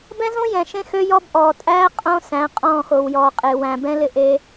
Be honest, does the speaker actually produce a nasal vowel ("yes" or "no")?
yes